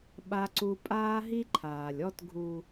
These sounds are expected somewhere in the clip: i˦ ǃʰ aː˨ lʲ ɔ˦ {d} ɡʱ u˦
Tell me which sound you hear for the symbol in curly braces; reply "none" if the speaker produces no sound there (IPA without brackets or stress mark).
t